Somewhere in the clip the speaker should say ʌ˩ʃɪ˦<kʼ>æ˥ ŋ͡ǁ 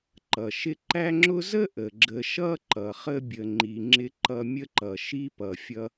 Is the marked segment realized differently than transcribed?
yes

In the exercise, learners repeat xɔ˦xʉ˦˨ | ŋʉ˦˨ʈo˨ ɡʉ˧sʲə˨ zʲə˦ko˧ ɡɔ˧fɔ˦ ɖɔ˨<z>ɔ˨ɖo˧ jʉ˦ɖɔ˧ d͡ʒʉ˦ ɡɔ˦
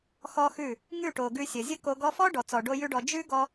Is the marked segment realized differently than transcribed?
yes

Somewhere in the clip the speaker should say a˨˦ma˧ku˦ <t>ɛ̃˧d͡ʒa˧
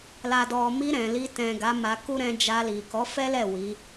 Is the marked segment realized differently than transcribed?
yes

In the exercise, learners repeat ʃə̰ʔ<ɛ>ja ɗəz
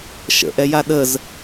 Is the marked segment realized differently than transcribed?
no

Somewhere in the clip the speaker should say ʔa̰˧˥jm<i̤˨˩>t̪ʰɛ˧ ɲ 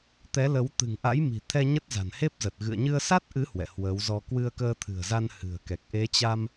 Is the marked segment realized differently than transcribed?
no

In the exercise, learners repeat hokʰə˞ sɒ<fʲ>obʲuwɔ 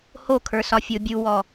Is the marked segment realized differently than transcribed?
no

